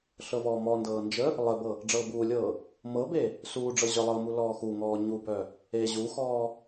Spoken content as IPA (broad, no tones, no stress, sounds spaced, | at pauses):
ɬ ɤ v ɔː m ɔ n d ɤː n d͡ʒ ə | lˠ ə b ɤ | ɖ͡ʐ ɤː b uː lʲ ɤː | m ɤ b e | s uː ɖ͡ʐ ɤ ʑ œ lˠ ɤ m u l ɔː x u ŋ ɔː ɲ u b œ | e ʑ u x ɔː